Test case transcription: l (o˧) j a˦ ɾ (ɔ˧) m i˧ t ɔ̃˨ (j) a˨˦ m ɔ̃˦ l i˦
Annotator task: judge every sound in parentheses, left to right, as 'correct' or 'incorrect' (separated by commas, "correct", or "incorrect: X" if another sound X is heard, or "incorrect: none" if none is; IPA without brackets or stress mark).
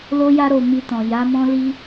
incorrect: o˦, incorrect: o˧, correct